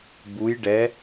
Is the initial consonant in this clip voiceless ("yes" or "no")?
no